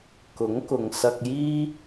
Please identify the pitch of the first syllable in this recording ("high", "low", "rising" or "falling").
rising